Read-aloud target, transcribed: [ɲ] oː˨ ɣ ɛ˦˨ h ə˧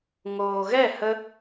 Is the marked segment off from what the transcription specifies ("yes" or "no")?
yes